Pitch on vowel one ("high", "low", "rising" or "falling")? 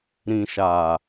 low